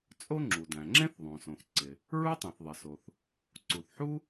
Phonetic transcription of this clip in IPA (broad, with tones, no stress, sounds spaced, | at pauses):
t͡sʼ o˥ ŋ͡ǁ u˩ d æ̃˩ ŋ͡ǁ ẽ˥ θ ðˤ õ˩ s õ˩ θ ǀ ɪ˩ | ɹ u˥ tˤ ẽ˩ θ ðˤ ɪ˩ s o˩ θ | ǀ u˩ θ ħ u˥